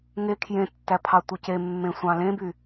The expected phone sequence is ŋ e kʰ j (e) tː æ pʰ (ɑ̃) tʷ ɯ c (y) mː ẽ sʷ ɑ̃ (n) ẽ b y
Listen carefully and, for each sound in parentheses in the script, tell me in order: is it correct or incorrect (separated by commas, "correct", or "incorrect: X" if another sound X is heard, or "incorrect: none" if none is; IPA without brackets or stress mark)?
incorrect: ẽ, incorrect: ɑ, incorrect: e, incorrect: l